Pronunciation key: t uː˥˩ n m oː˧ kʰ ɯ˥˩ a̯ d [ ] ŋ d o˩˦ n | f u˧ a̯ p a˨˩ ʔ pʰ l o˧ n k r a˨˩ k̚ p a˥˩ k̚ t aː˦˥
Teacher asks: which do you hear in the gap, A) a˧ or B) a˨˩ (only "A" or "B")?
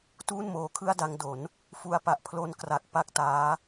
A